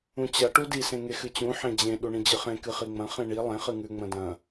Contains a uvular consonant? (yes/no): yes